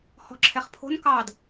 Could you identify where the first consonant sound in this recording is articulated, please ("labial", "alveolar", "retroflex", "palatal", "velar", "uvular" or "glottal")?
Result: glottal